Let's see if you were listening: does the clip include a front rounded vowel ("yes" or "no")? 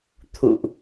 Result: no